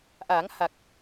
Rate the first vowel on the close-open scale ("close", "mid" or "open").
open